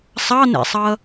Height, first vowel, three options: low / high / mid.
low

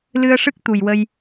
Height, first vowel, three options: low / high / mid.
high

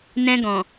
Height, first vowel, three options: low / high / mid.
mid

